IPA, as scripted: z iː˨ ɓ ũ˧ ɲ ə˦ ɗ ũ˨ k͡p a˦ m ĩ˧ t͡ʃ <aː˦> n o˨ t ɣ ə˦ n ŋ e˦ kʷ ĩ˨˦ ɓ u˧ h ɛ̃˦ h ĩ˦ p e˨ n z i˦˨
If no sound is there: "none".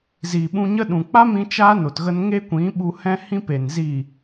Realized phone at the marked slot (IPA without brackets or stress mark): aː˦